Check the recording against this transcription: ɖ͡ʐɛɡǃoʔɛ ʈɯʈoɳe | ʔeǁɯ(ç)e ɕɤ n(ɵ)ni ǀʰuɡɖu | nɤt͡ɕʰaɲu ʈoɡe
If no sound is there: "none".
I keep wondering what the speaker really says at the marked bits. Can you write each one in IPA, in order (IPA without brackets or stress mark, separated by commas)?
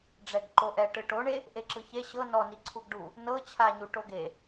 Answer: ç, ɔ